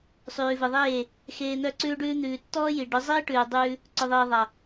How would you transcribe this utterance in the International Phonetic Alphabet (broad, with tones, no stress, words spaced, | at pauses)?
sˤʉː˨ve˨ðˤeː˦˨ | xeː˧n̪œ˦˨ǀʉː˦ɖʉː˦ n̪ʉː˨tːɔː˦ ji˨ ɖœ˨˦zˤiː˦ʈʉː˨dˤʉː˧ | ǀœ˨ðˤiː˨ ðˤa˨